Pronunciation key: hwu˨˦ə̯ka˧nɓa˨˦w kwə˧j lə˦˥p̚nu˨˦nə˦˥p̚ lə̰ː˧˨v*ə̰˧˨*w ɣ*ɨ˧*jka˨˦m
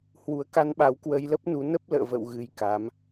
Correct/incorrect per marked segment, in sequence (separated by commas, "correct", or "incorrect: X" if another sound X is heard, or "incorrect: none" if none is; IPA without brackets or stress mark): correct, correct